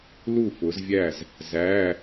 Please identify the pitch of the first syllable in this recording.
falling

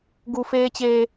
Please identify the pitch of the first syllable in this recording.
high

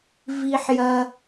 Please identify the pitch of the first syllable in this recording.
high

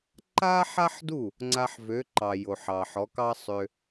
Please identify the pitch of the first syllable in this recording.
high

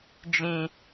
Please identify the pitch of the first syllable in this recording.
low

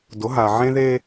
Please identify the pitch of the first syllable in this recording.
rising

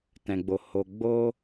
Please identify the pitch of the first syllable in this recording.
low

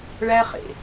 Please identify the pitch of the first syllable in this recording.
high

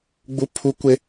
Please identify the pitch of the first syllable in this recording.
high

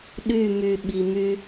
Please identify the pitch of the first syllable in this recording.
falling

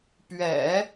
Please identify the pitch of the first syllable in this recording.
low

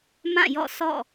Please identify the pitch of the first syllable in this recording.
falling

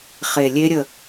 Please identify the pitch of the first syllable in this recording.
low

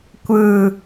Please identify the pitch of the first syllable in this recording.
falling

